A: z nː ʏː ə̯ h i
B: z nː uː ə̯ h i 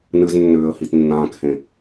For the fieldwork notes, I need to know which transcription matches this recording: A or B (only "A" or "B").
A